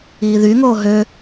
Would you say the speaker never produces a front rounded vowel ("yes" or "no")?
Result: no